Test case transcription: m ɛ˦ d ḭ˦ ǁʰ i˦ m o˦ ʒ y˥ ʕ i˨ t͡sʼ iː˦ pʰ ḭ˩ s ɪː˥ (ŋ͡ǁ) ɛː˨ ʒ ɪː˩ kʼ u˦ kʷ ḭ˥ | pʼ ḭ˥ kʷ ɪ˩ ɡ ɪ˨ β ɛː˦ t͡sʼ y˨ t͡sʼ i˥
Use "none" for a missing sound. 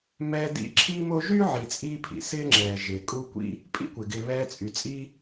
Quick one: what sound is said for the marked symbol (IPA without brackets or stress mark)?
ŋ͡ǁ